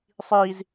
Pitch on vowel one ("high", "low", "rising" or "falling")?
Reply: high